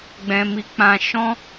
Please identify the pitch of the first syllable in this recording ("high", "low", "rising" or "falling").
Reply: high